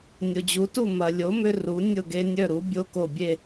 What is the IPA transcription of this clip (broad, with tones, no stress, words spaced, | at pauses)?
nʲo˩d͡ʑu˩˥tu˥˩ mɐ˩lʲo˩˥ mʏ˦ru˩˥ nʲʊ˥˩ɡe˦nʲœ˥˩ɾu˩˥ bʲo˦ko˧˩bʲe˥˩